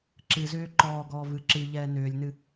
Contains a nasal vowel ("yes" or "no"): no